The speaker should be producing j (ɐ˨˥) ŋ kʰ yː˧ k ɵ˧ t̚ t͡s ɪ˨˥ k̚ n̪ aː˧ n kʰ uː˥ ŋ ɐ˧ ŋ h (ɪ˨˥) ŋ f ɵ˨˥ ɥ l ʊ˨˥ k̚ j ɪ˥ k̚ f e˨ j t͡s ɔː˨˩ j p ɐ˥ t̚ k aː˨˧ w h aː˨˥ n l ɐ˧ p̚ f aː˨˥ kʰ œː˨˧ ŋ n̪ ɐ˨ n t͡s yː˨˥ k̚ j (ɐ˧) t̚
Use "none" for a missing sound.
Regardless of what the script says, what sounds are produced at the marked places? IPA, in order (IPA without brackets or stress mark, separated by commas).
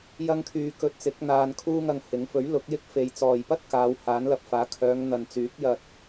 ɐ˥, ɪ˨˥, ɐ˧